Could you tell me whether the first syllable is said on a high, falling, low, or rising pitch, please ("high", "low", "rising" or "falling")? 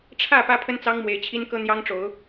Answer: falling